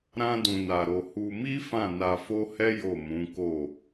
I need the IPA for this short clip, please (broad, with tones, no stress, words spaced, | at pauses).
ɾã˦dũ˧na˧ɾo˧ hu˧mi˦ fã˦˨na˧fo˦hɛ˦ jo˦˨mũ˨˦ko˦˨